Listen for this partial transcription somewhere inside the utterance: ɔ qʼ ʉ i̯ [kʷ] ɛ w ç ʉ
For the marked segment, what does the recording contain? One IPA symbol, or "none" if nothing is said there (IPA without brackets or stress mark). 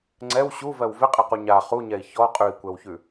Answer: kʷ